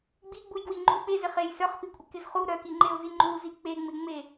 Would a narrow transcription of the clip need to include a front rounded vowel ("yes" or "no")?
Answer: yes